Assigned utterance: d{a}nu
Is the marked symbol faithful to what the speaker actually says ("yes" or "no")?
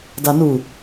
yes